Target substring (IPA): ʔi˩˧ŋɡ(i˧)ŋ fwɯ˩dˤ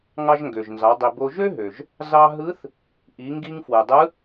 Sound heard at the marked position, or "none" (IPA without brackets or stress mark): i˧